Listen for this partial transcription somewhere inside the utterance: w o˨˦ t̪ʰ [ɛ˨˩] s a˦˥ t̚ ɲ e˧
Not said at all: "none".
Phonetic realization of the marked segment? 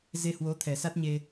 ɛ˨˩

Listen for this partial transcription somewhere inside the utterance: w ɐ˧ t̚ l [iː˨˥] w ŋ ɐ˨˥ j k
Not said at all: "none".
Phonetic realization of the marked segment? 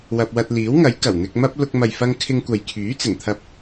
iː˨˥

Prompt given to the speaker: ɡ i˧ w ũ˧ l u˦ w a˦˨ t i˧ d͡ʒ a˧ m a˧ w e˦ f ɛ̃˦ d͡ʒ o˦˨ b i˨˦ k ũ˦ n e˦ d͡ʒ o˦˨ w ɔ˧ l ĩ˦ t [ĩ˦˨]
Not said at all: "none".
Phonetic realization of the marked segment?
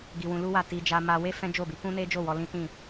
ĩ˦˨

